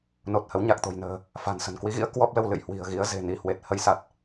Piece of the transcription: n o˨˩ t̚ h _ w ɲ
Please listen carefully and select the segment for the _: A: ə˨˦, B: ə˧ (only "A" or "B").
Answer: A